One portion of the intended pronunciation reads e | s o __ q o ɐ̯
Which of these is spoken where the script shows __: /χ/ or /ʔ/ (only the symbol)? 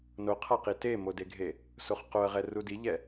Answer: χ